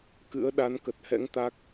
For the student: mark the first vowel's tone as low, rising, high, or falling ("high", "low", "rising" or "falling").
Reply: rising